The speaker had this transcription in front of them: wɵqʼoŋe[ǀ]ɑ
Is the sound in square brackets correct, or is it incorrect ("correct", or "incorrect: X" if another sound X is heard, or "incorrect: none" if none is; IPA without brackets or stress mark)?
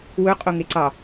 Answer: correct